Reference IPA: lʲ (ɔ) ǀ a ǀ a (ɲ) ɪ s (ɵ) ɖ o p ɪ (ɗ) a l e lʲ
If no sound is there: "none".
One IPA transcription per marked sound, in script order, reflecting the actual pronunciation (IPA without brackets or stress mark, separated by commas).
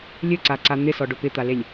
ɵ, n̪, ɔ, t̪